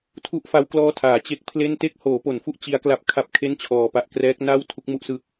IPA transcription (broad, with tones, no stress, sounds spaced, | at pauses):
tʰ u˦˥ ʔ f a˦˥ w k l ɔː˦˥ tʰ aː˩˦ t͡ɕ e˦˥ k̚ pʰ l e˥˩ n t e˦˥ k̚ h oː˩˦ p o˩˦ n f u˦˥ ʔ t͡ɕ i˦˥ a̯ k l a˦˥ p̚ kʰ a˥˩ p̚ kʰ e˥˩ n t͡ɕʰ ɔː˩˦ p a˨˩ ʔ k r ɛː˦˥ k̚ n a˥˩ w tʰ u˦˥ k̚ m u˥˩ ʔ s ɯː˦˥ k̚